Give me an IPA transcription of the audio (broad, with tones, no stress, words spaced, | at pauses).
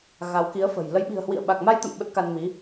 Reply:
ɣa˨˦wki˨˦ə̯fə̤˨˩j lə˨˦jɓi̤˨˩ə̯hwḭ˧˨ə̯ ɓa˨˩k̚ma˧jt̪ə̰˧˨m ɓə˦˥t̚ka˧nmi˨˦